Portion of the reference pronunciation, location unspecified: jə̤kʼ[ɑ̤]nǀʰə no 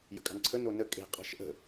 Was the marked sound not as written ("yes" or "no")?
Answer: no